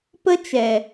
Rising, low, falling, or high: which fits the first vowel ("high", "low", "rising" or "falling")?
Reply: high